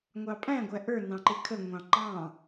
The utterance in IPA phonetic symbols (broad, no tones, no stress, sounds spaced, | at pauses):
ŋʷ ɑ pʼ æ̃ ɡʷ æ ʔ ə˞ n ɑ̃ ǃ ɪ kʰ ə ŋʷ ɑ̃ ŋ͡ǃ ɑ̃